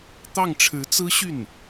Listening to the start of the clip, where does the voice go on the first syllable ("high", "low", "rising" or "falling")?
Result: falling